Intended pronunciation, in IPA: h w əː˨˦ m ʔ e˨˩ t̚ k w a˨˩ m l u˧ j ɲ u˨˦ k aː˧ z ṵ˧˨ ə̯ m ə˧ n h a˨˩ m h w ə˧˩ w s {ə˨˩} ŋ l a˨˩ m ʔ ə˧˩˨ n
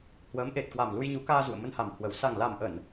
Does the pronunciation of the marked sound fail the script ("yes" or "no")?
yes